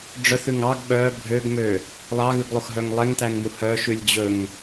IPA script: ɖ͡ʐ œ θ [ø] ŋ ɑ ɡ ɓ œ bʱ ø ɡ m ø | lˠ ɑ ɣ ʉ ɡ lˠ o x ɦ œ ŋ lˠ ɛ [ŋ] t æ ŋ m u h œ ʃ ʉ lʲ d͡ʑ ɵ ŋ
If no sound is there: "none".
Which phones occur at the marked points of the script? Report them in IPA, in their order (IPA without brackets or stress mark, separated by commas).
ʉ, ŋ